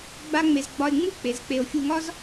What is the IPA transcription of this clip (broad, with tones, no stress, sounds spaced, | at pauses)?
ɡ͡b a˥ ŋ͡m e˧ z ɡ͡b ɒ˧ e̯ ŋ͡m u˥ k͡p e˩˥ z k͡p e˧ o̯ fʲ u˧ ŋ ɒ˥ z